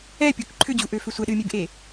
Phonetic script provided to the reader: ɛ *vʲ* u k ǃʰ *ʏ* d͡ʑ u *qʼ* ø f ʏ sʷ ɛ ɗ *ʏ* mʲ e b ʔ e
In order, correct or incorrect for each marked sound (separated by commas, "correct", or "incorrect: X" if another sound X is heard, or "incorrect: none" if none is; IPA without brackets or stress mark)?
incorrect: pʲ, correct, incorrect: ʔ, incorrect: ɨ